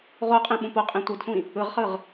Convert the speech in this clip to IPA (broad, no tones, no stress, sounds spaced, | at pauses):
ʁ o qʼ ĩ ɓ ũ p o qʼ ĩ tʷ ɯ d sʷ ĩ | ɯ ʁ χ ɯ ʁ